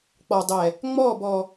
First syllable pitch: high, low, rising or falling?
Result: low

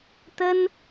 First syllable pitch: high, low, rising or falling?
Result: high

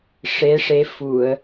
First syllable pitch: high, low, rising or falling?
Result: rising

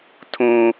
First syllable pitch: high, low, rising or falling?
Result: low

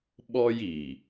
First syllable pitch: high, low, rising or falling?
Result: high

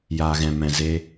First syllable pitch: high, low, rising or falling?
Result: low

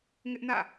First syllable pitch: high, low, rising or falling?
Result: high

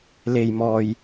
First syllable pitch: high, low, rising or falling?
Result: low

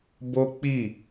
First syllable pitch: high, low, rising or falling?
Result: high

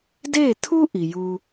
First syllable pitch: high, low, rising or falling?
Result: falling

